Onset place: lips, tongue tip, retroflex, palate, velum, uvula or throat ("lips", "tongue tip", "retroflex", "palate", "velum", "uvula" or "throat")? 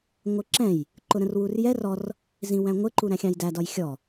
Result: velum